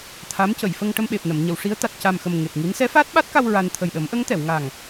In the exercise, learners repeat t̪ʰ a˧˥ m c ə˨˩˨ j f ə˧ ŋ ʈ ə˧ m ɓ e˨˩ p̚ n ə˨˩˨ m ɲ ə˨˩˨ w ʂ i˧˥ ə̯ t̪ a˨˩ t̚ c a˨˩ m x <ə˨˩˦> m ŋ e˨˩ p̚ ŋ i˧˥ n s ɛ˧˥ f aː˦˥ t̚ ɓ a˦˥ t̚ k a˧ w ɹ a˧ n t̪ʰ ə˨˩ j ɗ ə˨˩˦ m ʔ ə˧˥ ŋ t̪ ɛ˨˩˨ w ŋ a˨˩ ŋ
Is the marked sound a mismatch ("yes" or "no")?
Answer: yes